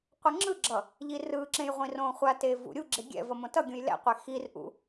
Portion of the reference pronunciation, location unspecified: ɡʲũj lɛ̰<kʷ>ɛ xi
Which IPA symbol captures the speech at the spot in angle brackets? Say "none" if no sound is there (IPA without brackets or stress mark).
qʷ